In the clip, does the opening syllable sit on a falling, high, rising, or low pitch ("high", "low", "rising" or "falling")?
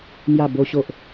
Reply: falling